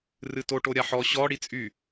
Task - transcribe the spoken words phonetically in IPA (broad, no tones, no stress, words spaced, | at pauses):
rɨtoʈo ɾʲaħɔ ɕɔ ɽit͡sʼy